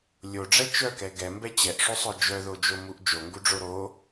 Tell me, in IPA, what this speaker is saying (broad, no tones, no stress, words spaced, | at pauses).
lʲoɖ͡ʐɛ t͡ʃœkɛ ɡɛmbɛ t͡ɕɛʔʂosˤœ d͡ʒœðod͡ʒomuʔ d͡ʒoŋɡuɖ͡ʐo ɾo